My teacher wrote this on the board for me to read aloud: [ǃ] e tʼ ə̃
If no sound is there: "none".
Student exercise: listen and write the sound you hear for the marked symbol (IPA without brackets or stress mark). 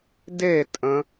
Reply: d